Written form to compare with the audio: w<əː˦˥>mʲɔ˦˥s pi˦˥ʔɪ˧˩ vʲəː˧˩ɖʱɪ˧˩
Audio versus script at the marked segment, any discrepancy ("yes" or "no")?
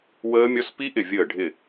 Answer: no